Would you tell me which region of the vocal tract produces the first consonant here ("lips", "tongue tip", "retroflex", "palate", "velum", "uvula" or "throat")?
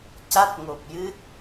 palate